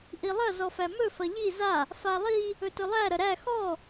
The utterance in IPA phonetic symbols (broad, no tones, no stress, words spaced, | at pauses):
ʔilˠɐ zɔfæmɵ fɐʎi za | falˠi | ɵtɵlˠæ ɾɐɾæ xɔ